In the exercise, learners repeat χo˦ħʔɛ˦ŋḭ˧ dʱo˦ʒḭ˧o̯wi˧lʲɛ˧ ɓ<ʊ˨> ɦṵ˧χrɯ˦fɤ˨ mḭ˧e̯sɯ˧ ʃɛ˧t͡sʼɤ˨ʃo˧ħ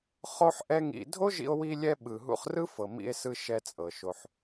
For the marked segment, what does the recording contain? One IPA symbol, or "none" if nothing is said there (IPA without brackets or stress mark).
ɯ˨